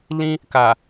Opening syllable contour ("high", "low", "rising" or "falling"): high